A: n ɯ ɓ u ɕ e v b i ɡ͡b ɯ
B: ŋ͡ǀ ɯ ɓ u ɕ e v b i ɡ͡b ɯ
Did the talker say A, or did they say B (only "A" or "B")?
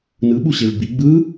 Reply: A